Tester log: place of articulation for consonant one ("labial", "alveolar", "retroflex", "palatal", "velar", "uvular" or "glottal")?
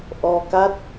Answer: glottal